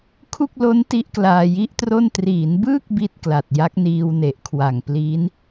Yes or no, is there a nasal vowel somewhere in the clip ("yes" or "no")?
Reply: no